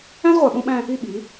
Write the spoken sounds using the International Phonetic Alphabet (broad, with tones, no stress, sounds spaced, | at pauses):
æ̃˦ z ʁʷ æ˨ ɓ õ˦ ɓ æ̃˦ | i˦ ɓ i˨˦